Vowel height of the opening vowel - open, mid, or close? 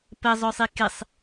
mid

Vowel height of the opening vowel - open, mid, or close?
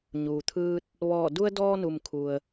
close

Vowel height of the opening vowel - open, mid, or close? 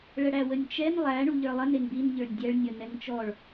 mid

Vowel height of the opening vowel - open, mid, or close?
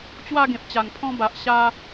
open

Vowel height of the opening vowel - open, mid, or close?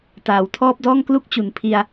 open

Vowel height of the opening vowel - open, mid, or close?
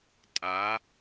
open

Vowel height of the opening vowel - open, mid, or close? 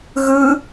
close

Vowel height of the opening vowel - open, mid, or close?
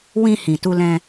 close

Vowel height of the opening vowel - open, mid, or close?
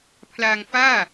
open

